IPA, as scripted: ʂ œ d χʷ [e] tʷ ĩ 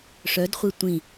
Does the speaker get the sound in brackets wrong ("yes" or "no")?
no